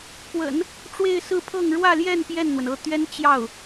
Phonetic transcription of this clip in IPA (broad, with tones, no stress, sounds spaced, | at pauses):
k w ə̰˨˩˦ n | ʈ͡ʂ w e˥˧ ɪ̯ s ɹ̩˥˧ pʰ ɤ˥˧ ŋ ɻ w ä˥˧ l j ɛ˥˧ n p j ɛ˥˩ n n̪ w ə˩ n ɤ˥˩ t̪ ɥ ɛ˥ n t͡ɕ j ɑ˥˩ ʊ̯